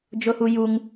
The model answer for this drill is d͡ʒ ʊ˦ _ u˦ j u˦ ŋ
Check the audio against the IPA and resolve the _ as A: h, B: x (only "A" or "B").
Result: A